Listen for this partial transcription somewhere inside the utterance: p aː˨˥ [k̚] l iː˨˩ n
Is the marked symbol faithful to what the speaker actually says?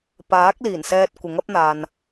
yes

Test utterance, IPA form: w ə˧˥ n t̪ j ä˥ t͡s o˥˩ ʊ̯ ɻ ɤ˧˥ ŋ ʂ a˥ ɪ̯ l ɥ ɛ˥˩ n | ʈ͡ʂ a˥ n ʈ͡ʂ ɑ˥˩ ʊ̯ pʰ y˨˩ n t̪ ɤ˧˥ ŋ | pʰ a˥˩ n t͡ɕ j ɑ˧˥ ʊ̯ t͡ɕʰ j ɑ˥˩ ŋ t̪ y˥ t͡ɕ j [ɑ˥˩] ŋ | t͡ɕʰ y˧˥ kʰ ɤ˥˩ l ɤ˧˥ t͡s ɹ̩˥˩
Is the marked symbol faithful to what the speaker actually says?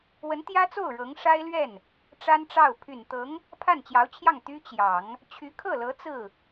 no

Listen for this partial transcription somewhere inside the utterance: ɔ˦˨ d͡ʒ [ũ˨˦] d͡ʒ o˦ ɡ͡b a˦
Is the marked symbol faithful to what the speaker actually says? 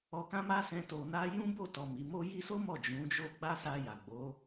yes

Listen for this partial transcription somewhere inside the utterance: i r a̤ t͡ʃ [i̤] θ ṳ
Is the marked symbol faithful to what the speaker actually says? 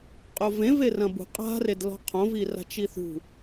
no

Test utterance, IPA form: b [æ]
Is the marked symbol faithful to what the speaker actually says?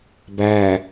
yes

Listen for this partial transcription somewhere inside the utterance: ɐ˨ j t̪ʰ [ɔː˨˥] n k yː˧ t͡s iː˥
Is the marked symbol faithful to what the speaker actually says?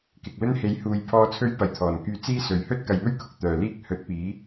no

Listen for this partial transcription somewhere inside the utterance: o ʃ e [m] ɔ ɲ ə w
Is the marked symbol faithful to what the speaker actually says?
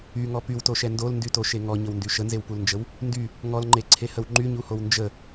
no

